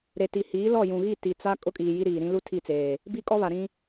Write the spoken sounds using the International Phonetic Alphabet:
ɾ e˨ t i˨ h iː˨˦ l ɔ˦˨ j ũ˨ ɣ i˦˨ t i˨ t͡s a˦ kʼ ʊ˦ kʼ iː˨ j i˦ ɾ iː˨ ɾ ĩ˦ l u˦ tʰ i˦˨ t͡s eː˨ | b i˦ kʼ ɔ˦ β a˨ ɾ ĩ˦

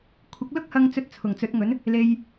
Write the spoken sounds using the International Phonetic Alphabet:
kʷʰ ɪ˨˥ k̚ l ʊ˥ k̚ h ɐ˧ ŋ t͡s ɵ˧ t̚ t͡sʰ ʊ˨˩ ŋ t͡s ɵ˨˥ t̚ ŋ ɵ˨˥ n | l e˧ j

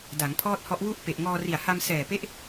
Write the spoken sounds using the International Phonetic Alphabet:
d a˩˦ ŋ pʰ ɔː˥˩ t̚ h ɔ˦˥ ʔ w u˥˩ ʔ p e˨˩ ʔ ŋ ɔː˧ r i˨˩ a̯ h a˧ m s ɛː˨˩ p e˦˥ ʔ

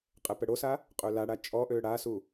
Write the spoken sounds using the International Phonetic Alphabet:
qʼ ɛ p ə ɽ o s a | qʼ ø l a ɽ a t͡ʃʼ ɔ ʔ ø ɽ a s u

